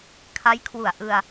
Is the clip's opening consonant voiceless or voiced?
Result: voiceless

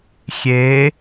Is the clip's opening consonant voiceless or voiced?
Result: voiceless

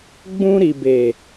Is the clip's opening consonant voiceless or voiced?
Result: voiced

